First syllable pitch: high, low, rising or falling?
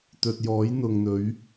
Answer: low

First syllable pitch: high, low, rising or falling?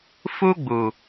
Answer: high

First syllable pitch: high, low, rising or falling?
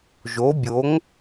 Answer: rising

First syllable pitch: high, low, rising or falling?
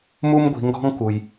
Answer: high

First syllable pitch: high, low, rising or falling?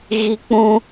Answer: high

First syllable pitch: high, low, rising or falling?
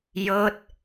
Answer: falling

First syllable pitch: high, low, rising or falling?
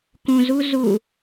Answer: low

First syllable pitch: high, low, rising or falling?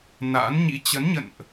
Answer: rising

